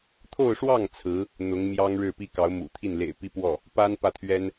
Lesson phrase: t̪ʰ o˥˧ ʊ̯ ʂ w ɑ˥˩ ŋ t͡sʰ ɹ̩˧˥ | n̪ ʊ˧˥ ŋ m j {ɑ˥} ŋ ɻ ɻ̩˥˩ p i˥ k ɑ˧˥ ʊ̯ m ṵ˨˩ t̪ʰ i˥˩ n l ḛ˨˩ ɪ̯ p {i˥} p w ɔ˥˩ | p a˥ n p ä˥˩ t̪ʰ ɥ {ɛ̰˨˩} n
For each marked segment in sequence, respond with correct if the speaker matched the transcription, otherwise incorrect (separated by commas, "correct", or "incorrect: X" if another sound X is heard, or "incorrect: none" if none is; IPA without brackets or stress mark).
correct, correct, incorrect: ɛ˥